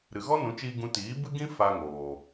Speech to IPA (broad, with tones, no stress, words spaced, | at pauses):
ɾɨ˨ɣɔ˦nũ˨˦t͡ʃiː˧ ɡũ˧tiː˨˦bɨ˦ɡĩ˦ fa˧ŋoː˨